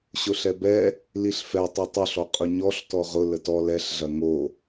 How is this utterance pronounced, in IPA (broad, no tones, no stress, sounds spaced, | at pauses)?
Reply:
ɕ ʊ ɬ ɛ b ɛ | l i ɬ f ɛ tˤ o tˤ ʊ ɬ ɔ qʼ ʊ ɲ ɔ ɬ t ɔ ʁ ʊ l ə t ɔ l ɛ ɬ ɮ ɐ ŋ o